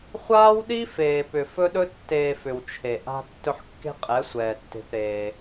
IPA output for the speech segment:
χʷ aː˦ w ɗ i˦ f eː˨ p ʏ˨ f ɵ˦ ɗ ɵ˦ tː eː˧ f ʏ˨ w t͡ʃʰ e˨ ʔ a̤˦ tː ɵ˧ ħ kː e̤˦ qʼ ɛ˨˦ sʷ ɛː˨ tː e̤˧ p ɾ eː˧

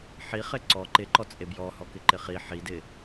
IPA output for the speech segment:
ħ i χ ɪ ǀ ɔ ǃ ɪ ǃ ɔ t͡sʼ e b j ɔ h ɔ k ɪ ǃ ɪ χ i ħ i d ɪ

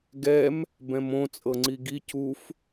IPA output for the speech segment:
ɡ ɛ m | b ɛ̃ m õ t͡sʼ ɤ ŋ͡ǀ i ɡ i c u f

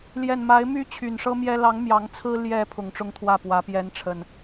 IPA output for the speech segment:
l j ɛ˨˩ n m a˨˦ ɪ̯ m y˦ t͡ɕʰ y˨˩ n ʂ ɤ˦ m j ɛ˦ l ɑ˨˦ ŋ m j ɑ˨˦ ŋ t͡sʰ ɹ̩˦ l j ɛ˨˦ pʰ ʊ˨˦ ŋ ʈ͡ʂ ʊ˦ ŋ t̪ʰ w ä˥˨ p w ä˨˦ p j ɛ˨˦ n ʈ͡ʂʰ ə˨˩ n

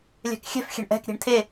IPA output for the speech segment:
lʲ ɛ̤ k xʲ ɛ̤ f xʲ ɛ̤ ɳ ʔ ɛ̤ k ɾʲ e̤ ɳ tʰ e

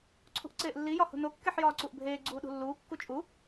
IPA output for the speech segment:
ǀʰ ṳ ʔ ǀ eː ʔ lː i j ɒ h ṳ n o kː e ħ j ɒː ǀ u ʔ bʱ eː ɡ͡ǀ uː ɗ ṳ lː uː kː u t͡ʃʼ u

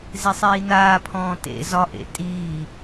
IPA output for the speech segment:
z e sˤ iː n aː pʰ ɔ̃ː t ḛ z ɒ ʔ ḛ tʼ iː

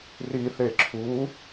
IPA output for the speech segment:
r i θ e ǁʰ u

